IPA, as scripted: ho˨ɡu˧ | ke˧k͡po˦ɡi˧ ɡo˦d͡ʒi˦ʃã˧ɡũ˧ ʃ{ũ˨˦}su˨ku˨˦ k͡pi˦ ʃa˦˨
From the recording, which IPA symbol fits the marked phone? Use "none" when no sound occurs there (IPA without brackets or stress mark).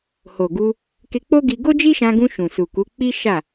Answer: ũ˨